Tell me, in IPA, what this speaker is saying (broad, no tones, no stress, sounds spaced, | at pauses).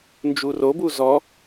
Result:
n d͡ʒ u r o b u z ɔ